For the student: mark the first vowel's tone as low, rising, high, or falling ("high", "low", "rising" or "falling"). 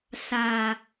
low